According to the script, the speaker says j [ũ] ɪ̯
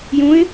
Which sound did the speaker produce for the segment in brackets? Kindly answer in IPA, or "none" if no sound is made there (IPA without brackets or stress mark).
ũ